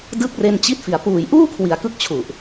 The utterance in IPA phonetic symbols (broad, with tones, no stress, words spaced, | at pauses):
dɯ˦˥k̚re˧nt͡ɕi˦˥t̚fi˨˩a̯ puː˨˩jʔuː˥˩kʰwi˩˦a̯ kɯ˥˩k̚t͡ɕʰu˨˩ʔ